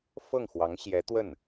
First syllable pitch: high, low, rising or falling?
falling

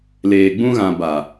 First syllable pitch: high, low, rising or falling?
low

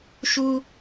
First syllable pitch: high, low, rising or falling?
high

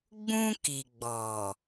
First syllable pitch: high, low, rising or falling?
high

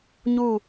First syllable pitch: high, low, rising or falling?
falling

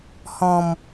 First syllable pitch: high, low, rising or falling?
low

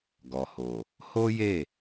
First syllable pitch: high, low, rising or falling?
low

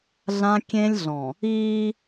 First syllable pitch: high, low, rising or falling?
high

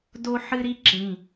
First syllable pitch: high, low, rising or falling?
high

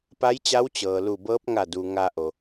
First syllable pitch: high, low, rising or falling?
rising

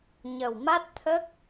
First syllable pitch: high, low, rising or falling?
low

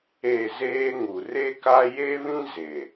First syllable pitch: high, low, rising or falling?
falling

